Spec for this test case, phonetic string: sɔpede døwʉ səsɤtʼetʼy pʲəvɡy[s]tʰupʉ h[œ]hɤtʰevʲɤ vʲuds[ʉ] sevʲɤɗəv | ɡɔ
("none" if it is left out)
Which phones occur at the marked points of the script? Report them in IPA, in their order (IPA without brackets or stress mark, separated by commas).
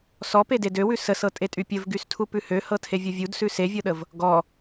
s, ø, ʉ